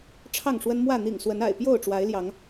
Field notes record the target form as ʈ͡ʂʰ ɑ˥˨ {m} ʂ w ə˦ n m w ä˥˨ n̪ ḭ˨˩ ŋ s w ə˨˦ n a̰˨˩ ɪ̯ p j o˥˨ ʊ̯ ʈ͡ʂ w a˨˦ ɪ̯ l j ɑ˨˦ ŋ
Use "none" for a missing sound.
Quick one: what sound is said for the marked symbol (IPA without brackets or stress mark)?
ŋ